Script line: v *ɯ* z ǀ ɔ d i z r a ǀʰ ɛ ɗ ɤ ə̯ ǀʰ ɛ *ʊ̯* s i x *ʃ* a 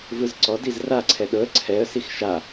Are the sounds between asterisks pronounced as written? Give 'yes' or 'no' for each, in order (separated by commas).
yes, no, yes